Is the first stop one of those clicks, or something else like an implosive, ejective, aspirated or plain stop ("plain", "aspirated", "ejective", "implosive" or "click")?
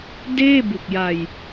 plain